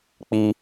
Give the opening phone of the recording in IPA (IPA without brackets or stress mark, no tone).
k͡p